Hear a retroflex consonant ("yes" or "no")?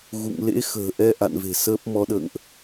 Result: no